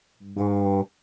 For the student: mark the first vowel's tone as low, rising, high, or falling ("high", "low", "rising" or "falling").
low